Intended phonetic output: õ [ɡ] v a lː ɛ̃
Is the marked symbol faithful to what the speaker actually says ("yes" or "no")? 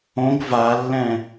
yes